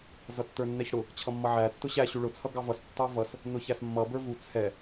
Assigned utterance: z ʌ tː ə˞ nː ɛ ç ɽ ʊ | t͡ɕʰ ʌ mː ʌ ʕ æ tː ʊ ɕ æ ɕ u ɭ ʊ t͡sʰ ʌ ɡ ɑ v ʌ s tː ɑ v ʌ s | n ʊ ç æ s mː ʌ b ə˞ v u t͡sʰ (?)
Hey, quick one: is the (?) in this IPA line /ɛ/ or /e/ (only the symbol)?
ɛ